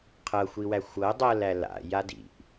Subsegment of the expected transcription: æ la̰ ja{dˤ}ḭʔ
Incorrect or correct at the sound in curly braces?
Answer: incorrect: d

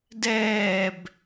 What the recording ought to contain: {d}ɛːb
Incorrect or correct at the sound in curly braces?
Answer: correct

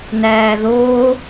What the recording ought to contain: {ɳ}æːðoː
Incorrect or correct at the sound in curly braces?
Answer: incorrect: n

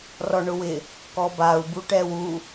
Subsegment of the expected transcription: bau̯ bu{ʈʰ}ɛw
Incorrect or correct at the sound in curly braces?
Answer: incorrect: ʈ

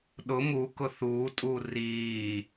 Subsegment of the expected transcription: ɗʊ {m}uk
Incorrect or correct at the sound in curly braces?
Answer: correct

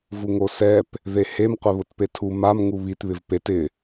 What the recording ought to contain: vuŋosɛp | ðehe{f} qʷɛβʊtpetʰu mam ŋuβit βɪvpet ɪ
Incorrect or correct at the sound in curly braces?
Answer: incorrect: m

